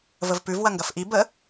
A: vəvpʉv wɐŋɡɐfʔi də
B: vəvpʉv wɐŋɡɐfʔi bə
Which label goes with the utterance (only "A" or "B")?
B